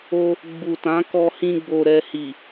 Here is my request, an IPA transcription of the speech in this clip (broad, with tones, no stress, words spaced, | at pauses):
o˧ | ɡ͡bu˨ tã˨˦kɔ˧hĩ˧ ɡ͡bo˨ɾɛ˨ hi˨